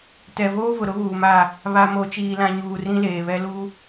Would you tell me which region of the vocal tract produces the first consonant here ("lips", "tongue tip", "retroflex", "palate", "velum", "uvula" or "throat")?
tongue tip